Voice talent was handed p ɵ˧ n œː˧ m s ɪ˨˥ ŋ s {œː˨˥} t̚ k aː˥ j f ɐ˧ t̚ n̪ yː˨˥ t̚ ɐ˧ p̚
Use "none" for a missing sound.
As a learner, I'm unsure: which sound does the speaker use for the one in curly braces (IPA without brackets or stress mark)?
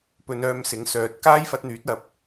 œː˨˥